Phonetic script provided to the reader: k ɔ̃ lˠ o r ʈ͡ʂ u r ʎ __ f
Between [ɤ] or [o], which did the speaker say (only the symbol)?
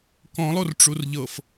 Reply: ɤ